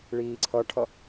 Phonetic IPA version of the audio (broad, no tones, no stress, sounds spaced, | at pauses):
ɭ iː ǀʰ ʌ ʈʰ ʌ